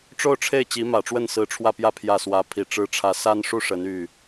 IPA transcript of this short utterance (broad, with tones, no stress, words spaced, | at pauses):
ʈ͡ʂo˥˧ʊ̯ʈ͡ʂʰe˥˩ɪ̯ t͡ɕi˧˥mä˨˩ʈ͡ʂwə˥˩n sɹ̩˧˥ʈ͡ʂʰwä˥˧pjä˥˧ pʰjä˥˩swä˧˥ pʰi˨˩ʈ͡ʂɻ̩˥ʈ͡ʂʰä˧˥ sa˥nʂu˥˩ ʂə˧˥ny˥˩